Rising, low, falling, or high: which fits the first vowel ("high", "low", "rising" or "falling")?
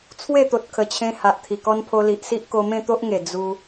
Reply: falling